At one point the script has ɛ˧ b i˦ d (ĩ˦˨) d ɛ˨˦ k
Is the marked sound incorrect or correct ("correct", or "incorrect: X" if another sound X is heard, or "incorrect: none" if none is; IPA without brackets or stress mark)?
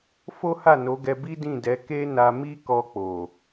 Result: correct